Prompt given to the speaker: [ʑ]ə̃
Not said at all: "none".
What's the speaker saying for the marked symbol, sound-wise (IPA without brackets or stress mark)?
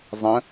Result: zˤ